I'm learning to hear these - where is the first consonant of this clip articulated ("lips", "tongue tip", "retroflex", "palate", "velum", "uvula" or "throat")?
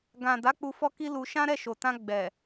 velum